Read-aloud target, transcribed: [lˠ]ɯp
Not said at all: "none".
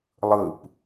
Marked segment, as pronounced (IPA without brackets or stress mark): lˠ